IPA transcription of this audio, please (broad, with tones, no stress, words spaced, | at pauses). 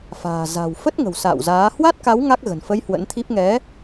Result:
fa̤ː˨˩ za̤˨˩wfə˦˥t̚ŋə̤˨˩w sa̰ː˧˨wzaː˨˦ hwa˦˥t̚ka˨˦w ŋa˦˥k̚ ɣə̤˨˩nfə˧j hwə̰˧˥nt̪ʰi˦˥p̚ ŋɛ˨˦